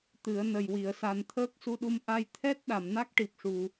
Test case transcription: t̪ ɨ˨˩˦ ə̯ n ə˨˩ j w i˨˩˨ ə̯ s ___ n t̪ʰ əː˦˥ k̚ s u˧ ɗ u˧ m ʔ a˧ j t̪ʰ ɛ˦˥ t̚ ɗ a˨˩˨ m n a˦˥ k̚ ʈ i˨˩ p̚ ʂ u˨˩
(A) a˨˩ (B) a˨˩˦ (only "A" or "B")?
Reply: A